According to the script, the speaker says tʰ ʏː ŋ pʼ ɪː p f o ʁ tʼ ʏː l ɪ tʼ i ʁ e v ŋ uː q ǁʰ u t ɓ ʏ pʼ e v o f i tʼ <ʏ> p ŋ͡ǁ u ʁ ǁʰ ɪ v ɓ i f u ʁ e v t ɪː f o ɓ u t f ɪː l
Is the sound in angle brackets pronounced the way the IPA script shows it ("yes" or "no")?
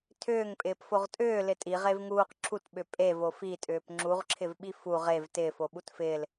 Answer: no